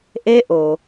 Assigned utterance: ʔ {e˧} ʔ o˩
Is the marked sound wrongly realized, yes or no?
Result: no